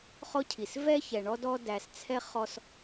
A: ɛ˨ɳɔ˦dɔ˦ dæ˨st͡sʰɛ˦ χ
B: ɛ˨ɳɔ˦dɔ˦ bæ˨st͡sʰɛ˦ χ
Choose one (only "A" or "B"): A